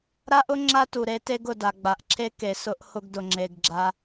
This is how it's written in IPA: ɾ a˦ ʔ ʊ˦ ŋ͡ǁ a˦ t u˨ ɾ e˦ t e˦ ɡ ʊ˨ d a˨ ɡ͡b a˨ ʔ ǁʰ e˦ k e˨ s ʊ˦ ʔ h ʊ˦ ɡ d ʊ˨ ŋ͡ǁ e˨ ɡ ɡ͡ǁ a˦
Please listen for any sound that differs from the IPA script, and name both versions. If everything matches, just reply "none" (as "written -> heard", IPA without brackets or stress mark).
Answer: none